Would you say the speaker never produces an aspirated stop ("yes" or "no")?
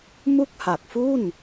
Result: yes